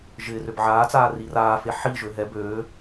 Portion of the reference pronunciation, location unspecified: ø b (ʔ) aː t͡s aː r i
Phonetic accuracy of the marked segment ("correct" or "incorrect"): incorrect